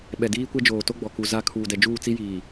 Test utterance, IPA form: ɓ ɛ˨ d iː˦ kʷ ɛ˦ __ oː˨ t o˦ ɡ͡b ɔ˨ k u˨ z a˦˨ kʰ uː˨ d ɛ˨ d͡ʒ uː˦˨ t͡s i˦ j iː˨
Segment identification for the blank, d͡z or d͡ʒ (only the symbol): d͡ʒ